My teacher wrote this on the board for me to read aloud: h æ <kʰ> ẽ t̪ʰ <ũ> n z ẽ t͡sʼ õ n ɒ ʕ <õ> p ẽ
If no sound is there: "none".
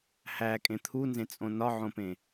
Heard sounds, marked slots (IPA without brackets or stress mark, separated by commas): kʼ, u, õ